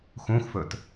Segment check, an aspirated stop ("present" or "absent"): absent